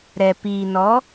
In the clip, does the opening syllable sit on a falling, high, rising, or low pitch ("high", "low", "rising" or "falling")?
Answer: low